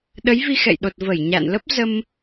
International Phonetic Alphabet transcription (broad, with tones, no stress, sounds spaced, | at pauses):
ɗ ə˨˦ j v i˧ x ɛ̰˧˨ j ɗ o˨˩ t̚ v ə˧˩ j ɲ a̰˧˨ n l ə˦˥ p̚ z ə˧ m